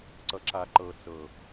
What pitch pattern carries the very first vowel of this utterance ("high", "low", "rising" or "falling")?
low